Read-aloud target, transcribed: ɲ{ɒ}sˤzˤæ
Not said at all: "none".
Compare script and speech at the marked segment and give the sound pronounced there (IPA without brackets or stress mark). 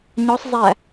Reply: ɒ